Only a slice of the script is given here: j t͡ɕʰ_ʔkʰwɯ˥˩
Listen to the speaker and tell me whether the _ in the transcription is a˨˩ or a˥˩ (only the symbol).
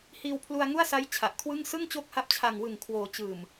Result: a˨˩